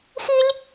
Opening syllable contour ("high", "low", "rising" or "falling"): high